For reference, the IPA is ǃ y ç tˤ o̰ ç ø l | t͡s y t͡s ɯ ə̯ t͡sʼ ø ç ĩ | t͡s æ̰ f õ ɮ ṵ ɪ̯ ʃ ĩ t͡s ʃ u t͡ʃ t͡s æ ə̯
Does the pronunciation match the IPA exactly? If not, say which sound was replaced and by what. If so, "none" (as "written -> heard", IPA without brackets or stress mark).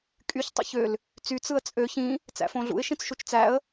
ǃ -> kʼ